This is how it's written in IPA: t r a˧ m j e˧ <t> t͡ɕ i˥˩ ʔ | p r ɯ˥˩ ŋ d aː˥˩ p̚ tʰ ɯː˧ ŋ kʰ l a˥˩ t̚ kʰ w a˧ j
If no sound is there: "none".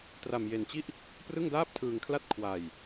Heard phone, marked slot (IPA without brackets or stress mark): n